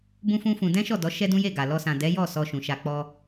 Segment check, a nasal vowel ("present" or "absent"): present